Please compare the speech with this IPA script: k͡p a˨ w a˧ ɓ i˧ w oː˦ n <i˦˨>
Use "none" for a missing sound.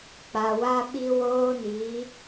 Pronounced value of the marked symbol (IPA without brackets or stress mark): i˨˦